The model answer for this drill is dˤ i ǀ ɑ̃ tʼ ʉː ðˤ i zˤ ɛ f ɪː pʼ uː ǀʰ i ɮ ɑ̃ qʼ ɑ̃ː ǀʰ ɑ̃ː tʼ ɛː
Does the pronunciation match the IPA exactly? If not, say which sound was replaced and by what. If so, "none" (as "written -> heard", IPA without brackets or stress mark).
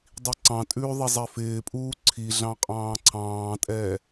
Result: none